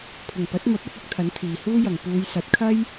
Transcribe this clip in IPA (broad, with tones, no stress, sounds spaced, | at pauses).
pʰ ʊ˨˩ ŋ p ɐ˨˥ t̚ m ɐ˨˥ p̚ ɐ˨˥ t̚ ʊ˨˥ k̚ t̪ʰ ɐ˨˥ n t̪ʰ iː˨ h uː˥ j ɐ˨ ŋ p uː˨˧ j s ɐ˨˥ t̚ kʰ ɐ˥ j